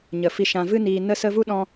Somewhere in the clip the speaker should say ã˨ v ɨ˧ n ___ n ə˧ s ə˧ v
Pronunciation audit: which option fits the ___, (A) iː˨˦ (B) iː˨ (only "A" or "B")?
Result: B